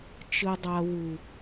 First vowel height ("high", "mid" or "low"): high